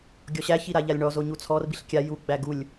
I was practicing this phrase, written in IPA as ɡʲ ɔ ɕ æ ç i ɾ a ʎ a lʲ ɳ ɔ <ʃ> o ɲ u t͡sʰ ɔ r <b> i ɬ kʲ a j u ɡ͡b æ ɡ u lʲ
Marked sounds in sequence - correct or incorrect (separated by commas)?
incorrect, correct